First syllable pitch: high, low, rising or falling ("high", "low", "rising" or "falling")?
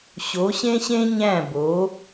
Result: rising